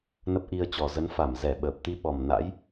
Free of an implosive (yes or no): no